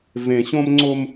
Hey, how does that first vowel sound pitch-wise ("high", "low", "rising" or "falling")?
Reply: low